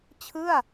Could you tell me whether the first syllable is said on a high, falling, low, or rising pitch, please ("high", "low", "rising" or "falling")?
falling